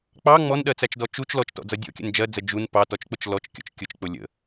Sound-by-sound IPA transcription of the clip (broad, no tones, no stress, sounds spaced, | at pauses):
k͡p ɑ ŋ͡m ɔ n ɗ ɜ t͡s æ t͡ʃ d ɔ t͡ʃ u t͡ʃ l ɔ t͡ʃ t ɔ̰ d͡z ʌ dʲ ɔ̰ kʲ ə̰ n d͡ʒ ɜ d͡z ə d͡ʒ u n p ɑ t ɔ t͡ʃ k͡p ʊ t͡ʃ l ɔ t͡ʃ kʲ ɔ̰ t͡ʃ kʲ ʊ t͡ʃ k͡p ʊ lʲ ə̰